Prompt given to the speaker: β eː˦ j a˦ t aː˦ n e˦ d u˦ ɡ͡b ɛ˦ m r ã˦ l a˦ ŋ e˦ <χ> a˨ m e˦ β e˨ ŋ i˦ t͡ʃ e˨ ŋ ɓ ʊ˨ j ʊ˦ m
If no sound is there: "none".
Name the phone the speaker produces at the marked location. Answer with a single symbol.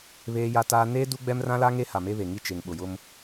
h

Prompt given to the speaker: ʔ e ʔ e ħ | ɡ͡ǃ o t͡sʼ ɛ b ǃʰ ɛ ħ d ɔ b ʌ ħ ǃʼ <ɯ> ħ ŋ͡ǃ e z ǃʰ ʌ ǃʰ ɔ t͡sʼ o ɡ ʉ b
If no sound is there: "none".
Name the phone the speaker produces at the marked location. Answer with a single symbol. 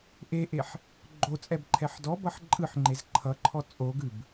ɯ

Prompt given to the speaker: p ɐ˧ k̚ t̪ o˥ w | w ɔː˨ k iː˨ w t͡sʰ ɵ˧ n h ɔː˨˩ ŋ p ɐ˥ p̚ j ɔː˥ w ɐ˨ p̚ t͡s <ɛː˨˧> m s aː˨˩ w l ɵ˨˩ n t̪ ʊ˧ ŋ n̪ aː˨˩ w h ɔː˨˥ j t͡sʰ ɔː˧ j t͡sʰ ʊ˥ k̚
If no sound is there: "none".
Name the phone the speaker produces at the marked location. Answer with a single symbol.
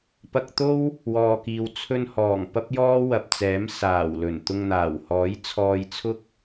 ɛː˨˥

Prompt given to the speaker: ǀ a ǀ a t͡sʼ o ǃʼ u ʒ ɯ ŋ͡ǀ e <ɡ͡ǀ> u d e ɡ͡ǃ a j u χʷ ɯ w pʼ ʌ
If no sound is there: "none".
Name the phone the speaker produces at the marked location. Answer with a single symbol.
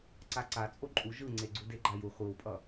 ɡ͡ǀ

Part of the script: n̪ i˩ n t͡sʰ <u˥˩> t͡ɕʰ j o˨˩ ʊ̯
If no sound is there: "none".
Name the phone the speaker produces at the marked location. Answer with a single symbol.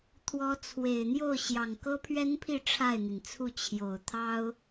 u˥˩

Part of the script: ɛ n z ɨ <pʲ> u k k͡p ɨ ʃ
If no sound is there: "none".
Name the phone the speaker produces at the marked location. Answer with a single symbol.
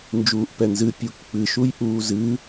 pʲ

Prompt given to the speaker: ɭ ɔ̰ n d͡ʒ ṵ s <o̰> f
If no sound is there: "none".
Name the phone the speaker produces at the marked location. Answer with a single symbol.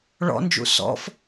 ɔ̰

